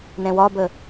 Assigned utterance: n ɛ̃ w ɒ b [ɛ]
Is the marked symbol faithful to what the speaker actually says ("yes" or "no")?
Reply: no